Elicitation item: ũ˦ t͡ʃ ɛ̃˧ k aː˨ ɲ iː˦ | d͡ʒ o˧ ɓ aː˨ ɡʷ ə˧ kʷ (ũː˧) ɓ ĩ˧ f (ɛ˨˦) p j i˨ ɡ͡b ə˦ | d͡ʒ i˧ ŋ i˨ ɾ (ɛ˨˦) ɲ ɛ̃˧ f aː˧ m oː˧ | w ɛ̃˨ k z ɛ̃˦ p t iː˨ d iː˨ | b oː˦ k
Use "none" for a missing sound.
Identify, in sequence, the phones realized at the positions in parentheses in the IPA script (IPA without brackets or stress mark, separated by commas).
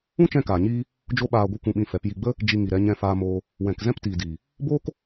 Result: ũ˧, ɛ˨˦, ɛ˨˦